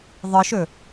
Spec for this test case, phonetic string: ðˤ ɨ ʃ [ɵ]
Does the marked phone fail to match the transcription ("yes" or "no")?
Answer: no